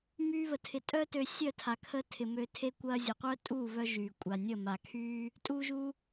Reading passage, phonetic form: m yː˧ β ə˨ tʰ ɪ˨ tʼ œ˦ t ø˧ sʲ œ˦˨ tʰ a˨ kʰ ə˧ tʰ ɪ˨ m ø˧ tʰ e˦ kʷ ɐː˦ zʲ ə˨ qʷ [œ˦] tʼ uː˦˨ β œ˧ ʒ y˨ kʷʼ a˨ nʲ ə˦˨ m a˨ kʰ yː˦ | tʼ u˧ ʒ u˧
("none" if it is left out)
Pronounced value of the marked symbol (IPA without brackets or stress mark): œ˦